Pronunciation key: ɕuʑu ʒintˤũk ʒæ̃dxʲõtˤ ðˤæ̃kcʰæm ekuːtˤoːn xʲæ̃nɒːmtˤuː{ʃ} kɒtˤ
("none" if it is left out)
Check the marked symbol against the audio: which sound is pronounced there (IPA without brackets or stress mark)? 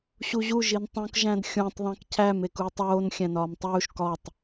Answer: ʃ